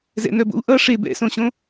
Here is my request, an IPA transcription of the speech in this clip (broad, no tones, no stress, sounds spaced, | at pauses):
z ɛ̰ n œ b o̰ u̯ ʔ ʌ ʂ e b ɛ̰ s õ ɕ õ